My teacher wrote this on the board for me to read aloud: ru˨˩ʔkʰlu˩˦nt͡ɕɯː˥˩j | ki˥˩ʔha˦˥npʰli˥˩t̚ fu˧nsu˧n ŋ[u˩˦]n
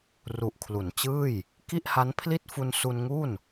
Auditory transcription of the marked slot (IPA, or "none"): u˥˩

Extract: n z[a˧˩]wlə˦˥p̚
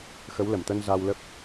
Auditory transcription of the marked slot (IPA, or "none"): a˧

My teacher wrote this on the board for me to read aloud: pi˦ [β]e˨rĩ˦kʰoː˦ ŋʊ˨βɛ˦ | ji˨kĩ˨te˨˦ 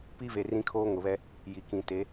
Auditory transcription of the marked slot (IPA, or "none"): v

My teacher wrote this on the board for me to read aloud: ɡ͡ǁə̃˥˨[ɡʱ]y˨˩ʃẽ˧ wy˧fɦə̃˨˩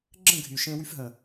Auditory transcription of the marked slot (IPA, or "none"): ɡʱ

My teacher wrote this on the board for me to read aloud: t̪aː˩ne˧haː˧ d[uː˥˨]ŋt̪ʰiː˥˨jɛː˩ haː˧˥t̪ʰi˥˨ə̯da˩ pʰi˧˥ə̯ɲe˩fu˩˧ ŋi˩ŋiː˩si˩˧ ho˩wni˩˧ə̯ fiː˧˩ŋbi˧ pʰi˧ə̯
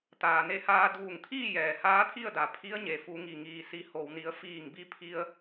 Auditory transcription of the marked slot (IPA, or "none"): uː˧˩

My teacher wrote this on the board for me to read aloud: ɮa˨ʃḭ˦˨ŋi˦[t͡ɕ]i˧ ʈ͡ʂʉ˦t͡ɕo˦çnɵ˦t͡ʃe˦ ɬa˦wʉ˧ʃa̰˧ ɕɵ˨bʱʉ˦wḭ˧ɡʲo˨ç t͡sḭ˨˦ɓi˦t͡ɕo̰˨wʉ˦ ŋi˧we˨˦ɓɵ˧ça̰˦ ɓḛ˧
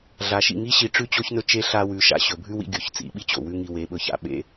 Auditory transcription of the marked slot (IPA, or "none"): ɕ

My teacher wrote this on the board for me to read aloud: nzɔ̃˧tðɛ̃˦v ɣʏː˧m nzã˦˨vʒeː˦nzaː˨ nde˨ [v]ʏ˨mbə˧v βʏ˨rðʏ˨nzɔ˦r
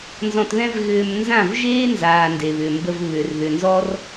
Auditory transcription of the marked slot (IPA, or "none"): β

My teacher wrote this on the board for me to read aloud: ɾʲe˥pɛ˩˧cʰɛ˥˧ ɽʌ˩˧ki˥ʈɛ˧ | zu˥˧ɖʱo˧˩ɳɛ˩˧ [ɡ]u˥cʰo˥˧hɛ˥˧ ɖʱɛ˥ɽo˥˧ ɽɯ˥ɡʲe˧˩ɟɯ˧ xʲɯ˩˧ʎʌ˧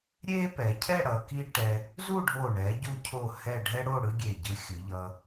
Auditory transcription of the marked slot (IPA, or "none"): ɟ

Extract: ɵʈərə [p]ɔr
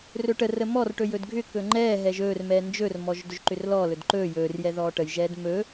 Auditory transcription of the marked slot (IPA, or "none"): m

